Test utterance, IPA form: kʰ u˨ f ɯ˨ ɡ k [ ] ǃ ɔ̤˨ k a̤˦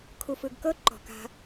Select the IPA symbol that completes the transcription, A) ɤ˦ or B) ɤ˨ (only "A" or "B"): A